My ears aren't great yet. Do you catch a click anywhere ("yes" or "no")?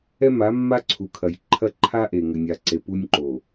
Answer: yes